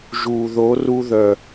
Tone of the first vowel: low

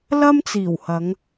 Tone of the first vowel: high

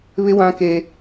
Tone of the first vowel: high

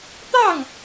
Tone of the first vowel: falling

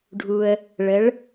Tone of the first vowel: low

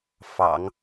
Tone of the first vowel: low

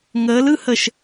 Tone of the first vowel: rising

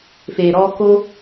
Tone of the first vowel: low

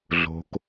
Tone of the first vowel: low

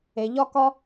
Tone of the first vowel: low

